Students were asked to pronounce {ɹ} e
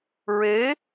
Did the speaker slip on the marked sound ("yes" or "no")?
no